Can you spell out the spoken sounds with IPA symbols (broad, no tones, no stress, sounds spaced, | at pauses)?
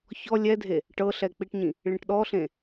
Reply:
ç ɔ lʲ ɛ dʱ e | ʈ ɤ ɬ ɛ k͡p i ʈ ɲ ĩ | ɭ ĩ ʈ ɗ ɔ ɬ ẽ